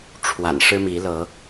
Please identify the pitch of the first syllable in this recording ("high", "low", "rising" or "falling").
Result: low